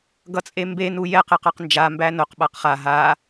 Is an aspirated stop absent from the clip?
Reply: yes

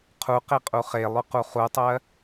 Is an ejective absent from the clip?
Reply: no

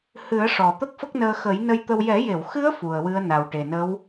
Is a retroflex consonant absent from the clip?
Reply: no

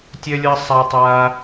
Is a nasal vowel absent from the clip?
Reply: yes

